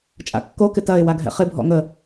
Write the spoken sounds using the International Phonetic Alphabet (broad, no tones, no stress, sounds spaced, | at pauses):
t͡ʃʼ a̰ kː o k ɪ t ɐ ɪ̯ w a ɡʱ ɛ̰ χ ɪ bʱ ɔ̰ ŋ ə